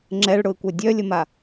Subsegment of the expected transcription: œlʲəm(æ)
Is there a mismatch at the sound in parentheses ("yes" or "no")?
yes